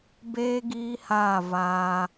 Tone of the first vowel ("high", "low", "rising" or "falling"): high